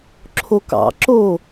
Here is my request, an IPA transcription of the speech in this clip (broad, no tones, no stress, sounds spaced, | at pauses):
ǁʰ o k ɑ̰ ǁ o